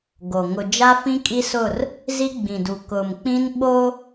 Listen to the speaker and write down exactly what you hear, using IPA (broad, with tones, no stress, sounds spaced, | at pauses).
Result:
ɡ o˨ ŋ ʊ˨ d͡ʒ a˦ f ĩ˦ kʼ i˦ s ʊ˦˨ r | z i˦ ɡ͡b ĩ˨ d u˨ k ʊ˨ m k͡p ĩ˦ n ɓ o˦